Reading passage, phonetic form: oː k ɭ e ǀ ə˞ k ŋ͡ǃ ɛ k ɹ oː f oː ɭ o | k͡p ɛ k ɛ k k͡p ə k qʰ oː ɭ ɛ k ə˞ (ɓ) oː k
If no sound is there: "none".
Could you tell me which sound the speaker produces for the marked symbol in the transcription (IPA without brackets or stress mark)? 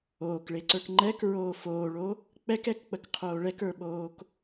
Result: ɓ